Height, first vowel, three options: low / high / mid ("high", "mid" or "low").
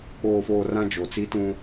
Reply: mid